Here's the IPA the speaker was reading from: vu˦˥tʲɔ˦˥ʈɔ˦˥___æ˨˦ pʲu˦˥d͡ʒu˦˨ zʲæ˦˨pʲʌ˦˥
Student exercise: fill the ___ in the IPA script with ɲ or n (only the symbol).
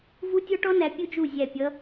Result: n